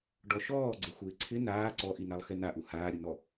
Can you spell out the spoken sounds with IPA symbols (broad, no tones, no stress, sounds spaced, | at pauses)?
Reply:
ɖ ɔ ʃ ɔː ɡ͡ǀ ɪ xʷ ɪː ǀʰ ɪ n aː ǀ ɔ ʔ i n a lˠ x ɛ n a ʔ u h aː ɾʲ ʊ n ɔ